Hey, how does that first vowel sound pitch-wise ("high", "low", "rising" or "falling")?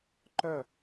falling